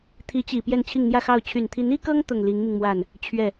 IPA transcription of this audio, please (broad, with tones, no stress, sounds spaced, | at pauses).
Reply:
t̪ʰ i˧˥ t͡ɕ i˨˩ p j ɛ˥˧ n t͡ɕʰ i˥˧ ŋ n̪ j ä˥˧ x ɑ˥˩ ʊ̯ t͡ɕʰ y˨˩ n t̪ʰ i˧˥ n i˥ k ɤ˥ ŋ t̪ ʊ˥˩ ŋ l i˧˥ ŋ m i˧ ŋ m w a˥˩ n | t͡ɕʰ ɥ ɛ˥˩